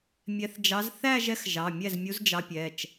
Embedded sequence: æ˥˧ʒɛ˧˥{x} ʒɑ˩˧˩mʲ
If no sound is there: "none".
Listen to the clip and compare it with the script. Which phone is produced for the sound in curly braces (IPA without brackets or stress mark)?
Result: x